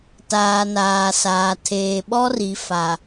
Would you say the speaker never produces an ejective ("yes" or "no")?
yes